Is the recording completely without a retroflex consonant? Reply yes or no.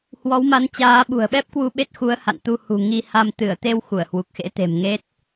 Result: yes